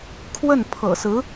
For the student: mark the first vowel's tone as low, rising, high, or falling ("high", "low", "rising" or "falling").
falling